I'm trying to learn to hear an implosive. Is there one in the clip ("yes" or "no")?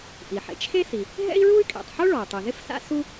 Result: no